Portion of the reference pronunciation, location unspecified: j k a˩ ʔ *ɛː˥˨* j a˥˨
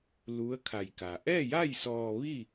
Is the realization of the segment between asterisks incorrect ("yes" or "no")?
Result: no